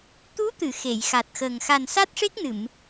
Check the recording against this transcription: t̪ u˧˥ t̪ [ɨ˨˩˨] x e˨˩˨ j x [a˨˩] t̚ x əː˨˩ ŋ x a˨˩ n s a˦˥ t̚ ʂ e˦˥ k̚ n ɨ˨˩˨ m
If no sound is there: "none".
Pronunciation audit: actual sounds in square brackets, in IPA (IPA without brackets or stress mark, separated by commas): ɨ˨˩˨, a˨˩